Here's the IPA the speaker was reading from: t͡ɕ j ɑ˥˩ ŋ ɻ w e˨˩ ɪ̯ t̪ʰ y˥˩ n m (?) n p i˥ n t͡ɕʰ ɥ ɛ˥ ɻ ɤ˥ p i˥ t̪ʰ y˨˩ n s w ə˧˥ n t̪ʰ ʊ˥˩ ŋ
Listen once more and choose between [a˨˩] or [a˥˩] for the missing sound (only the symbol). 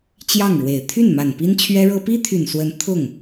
a˨˩